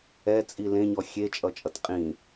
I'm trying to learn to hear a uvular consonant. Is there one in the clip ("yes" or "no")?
yes